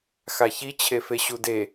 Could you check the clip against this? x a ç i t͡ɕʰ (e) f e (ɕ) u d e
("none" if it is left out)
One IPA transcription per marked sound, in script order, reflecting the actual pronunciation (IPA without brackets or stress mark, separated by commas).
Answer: e, ɕ